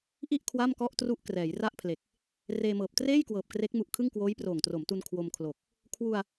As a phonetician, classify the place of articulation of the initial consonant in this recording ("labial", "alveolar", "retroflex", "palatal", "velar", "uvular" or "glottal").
glottal